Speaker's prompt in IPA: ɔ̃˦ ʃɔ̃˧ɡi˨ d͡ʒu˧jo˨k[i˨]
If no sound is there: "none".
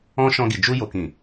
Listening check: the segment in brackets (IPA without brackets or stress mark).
ĩ˨